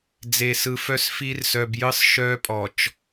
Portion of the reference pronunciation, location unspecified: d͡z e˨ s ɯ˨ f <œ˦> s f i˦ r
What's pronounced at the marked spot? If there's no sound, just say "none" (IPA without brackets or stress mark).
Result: œ˦